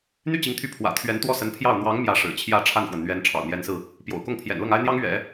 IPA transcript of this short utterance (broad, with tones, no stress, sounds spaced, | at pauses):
n̪ y˥˩ t͡ɕ i˧˥ ŋ t̪ʰ y˧˥ pʰ w ä̰˨˩ t̪ʰ ɥ ɛ˧˥ n t̪ w ɔ˥˩ s ə˧˥ n pʰ j ɑ˥˩ ʊ̯ n̪ w ɑ˧˥ ŋ m j ä˧˥ ʂ ɻ̩˨˩ t͡ɕʰ j ä˥˧ ʈ͡ʂʰ a˥˩ n f w ə˩ n n̪ ɥ ɛ˧˥ n ʈ͡ʂʰ ɑ̰˨˩ ʊ̯ n̪ j ɛ˧˥ n s ɹ̩˧ | p j o̰˨˩ ʊ̯ k ʊ˥˩ ŋ pʰ j ɛ̰˨˩ n l ɤ˥˩ ŋ a˥ ɪ̯ n̪ j ɑ˥ ŋ ɥ ɛ̰˨˩˦